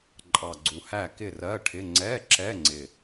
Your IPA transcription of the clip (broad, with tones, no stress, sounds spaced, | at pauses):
ǃʼ ɑ˨˩ ɡ͡ǀ u˨˩ h æ˥˨ k ɪ˥˨ r ɜ˧˥˧ ʈʰ ɪ˧˥˧ ŋ͡ǀ ɛ˧˥˧ ǁ ɛ˧˥˧ ŋ͡ǀ ɪ˨˩